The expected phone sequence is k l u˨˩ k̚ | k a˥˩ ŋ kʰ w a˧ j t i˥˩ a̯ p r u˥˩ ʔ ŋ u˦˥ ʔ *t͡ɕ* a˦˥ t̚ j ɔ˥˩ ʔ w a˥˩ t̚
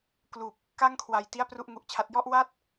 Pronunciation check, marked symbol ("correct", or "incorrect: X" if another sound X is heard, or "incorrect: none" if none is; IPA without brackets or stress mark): incorrect: t͡ɕʰ